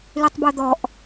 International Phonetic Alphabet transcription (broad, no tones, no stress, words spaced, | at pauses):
lytˤbod̪ɔʔ